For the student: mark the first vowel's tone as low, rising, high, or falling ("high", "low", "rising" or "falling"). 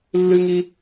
high